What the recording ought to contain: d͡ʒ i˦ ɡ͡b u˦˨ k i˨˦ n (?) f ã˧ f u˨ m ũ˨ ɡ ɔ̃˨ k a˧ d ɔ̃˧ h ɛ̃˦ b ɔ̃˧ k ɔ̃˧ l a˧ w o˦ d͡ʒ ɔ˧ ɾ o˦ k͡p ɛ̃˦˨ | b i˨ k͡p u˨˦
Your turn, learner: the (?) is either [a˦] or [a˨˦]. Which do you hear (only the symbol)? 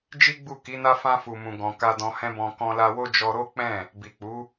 a˦